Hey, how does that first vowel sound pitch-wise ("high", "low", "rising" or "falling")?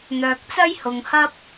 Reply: low